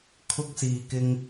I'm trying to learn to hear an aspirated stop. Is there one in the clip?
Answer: yes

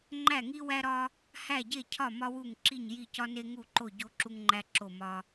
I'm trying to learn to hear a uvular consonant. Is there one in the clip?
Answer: no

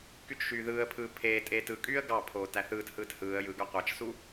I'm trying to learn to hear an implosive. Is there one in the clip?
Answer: no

